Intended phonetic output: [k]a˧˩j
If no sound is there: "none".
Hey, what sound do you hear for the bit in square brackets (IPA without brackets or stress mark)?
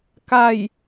k